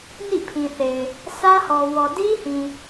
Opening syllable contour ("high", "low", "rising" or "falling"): falling